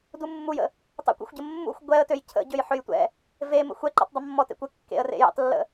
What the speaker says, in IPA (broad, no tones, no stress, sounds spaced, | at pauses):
d u mː u j ə̰ | tˤ ə̰ kʷ ɛ̰ xʷ ɟ ə mː ṵ xʷ ɡʷ ɛ ə̯ t ø j cʰ ə̰ ɟ ø j ħ ø j tʷ ɛ̰ | v e m ə̰ xʷ ɛ ǃ ɛ̰ tˤ dˤ ə mː ɔ t ḛ kʷ ə kː ḛ ə̯ r ḛ j ɛ̰ tˤ lː ə̰